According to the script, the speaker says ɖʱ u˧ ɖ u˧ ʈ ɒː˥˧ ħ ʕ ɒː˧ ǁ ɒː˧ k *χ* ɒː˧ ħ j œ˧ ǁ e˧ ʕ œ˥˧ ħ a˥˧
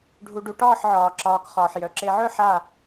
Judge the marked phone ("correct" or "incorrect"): correct